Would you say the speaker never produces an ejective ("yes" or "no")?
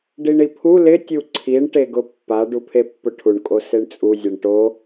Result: no